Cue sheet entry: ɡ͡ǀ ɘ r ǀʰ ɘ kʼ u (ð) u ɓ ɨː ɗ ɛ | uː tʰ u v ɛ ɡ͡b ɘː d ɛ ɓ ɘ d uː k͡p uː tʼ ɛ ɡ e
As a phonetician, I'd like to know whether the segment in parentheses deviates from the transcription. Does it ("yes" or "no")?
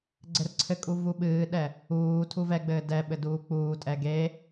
yes